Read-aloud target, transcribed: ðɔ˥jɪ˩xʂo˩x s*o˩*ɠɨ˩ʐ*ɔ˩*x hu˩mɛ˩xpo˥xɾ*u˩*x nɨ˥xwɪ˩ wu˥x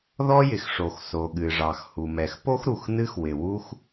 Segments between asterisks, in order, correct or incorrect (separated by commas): correct, incorrect, correct